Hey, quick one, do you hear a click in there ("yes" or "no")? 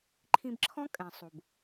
yes